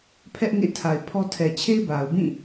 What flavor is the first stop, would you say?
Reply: aspirated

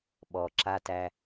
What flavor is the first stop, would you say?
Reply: implosive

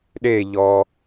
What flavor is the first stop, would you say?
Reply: implosive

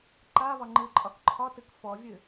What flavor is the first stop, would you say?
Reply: click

